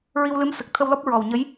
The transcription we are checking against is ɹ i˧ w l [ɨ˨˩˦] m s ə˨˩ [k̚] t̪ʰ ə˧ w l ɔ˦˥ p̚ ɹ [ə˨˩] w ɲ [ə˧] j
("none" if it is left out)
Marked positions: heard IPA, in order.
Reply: ɨ˧˥, k̚, ɔ˨˩, ə˧˥

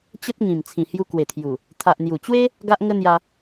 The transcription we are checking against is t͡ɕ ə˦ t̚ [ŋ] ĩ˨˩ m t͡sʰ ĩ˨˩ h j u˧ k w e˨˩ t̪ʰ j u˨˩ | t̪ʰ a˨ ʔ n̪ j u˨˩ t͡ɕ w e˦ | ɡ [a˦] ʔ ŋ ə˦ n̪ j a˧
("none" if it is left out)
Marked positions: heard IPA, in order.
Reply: ŋ, a˦

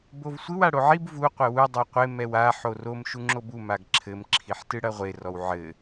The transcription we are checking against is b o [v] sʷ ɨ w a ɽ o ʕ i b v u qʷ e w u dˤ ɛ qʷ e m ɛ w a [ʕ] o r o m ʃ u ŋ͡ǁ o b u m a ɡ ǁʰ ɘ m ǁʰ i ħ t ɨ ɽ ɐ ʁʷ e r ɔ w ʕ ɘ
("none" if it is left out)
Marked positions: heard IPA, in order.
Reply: v, ħ

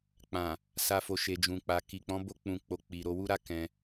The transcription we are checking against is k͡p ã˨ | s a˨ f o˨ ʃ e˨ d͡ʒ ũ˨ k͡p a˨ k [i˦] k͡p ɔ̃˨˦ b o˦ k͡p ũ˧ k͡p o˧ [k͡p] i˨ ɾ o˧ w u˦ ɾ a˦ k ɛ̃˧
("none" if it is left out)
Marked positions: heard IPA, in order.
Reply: i˨, k͡p

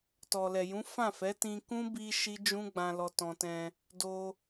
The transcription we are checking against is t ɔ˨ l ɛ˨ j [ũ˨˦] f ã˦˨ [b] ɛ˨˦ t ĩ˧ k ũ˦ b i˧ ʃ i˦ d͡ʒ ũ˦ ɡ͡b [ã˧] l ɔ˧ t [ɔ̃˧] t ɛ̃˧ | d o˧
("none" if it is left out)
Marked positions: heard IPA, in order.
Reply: ũ˨˦, f, ã˧, ɔ̃˧

